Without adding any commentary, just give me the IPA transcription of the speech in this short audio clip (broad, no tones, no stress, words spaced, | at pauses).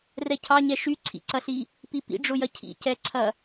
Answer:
rɛcʰɑɲɛ ʃyǀʰḭǀɐɬi | pipḭɖ͡ʐʊjɐ cʰḭcɛǀʰɐ